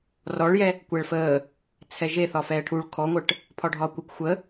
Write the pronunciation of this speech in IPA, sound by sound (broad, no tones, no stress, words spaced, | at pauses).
rɔɭjɛ | kʷɛɭfəː | t͡sʰɛʒe θɒfɛːʈʰuɭ kʰɔŋʷəːʈ | pʰɒɖʱɒːkʷəkʷ xʷə